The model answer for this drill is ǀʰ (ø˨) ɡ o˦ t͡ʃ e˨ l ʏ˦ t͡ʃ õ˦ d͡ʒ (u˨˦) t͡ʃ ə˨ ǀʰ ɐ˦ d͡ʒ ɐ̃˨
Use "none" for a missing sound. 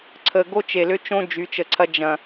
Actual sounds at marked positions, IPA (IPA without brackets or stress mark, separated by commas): ə˨, y˨˦